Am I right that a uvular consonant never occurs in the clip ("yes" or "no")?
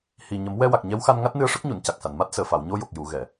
yes